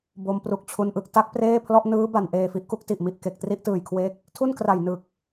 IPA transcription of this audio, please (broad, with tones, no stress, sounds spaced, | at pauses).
b o˧ m p r u˨˩ k̚ t͡ɕʰ u˧ n ʔ ɯ˨˩ k̚ t a˥˩ k̚ p r eː˥˩ pʰ l ɔ˥˩ ʔ n ɯː˦˥ b a˨˩ n ʔ eː˨˩ f i˦˥ ʔ k u˦˥ k̚ t i˨˩ ʔ m i˨˩ ʔ k e˨˩ k̚ t r i˦˥ ʔ t ɯː˨˩ j kʰ w e˦˥ k̚ | tʰ u˥˩ n k r a˨˩ j n ɯ˨˩ k̚